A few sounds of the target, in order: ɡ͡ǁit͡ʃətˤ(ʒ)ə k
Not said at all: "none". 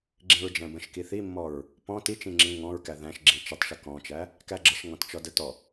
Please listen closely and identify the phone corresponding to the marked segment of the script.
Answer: ʃ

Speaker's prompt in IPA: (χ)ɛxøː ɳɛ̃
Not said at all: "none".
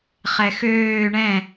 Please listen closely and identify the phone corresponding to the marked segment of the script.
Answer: χ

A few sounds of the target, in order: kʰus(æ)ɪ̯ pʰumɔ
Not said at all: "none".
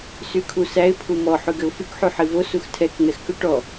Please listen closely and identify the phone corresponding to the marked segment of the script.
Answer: æ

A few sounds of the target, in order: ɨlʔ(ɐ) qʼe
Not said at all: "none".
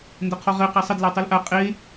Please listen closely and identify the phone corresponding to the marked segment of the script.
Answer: a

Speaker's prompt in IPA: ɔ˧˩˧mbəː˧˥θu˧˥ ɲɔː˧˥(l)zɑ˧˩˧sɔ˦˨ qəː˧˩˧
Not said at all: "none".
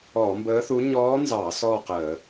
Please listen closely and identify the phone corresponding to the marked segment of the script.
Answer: n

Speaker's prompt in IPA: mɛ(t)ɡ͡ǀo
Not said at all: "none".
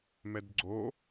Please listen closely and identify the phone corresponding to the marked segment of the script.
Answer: d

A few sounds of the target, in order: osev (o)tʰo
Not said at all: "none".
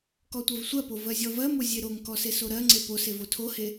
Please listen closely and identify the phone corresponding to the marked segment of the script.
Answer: o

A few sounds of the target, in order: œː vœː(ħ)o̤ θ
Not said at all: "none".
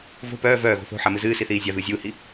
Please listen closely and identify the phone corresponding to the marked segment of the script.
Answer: ɣ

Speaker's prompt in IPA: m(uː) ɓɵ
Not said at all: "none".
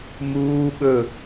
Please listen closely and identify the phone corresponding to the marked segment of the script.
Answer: uː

